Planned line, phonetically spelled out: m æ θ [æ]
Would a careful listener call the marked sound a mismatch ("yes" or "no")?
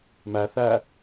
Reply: no